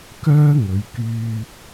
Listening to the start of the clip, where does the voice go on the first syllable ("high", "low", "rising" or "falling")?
high